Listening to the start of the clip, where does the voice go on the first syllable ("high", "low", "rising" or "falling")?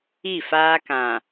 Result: falling